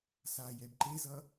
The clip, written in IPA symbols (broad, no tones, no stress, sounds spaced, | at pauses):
s a j ɛ b ǃ e z ʌ